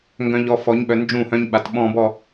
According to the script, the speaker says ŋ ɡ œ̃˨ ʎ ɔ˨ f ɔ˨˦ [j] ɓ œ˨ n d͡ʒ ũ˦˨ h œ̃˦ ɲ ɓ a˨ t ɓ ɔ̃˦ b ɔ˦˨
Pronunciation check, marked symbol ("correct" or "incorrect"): incorrect